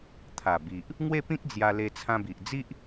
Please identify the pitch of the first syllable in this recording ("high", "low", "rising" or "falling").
low